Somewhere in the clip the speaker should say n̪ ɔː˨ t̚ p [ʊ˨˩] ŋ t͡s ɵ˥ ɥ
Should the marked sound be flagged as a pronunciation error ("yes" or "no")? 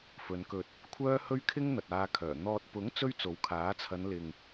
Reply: yes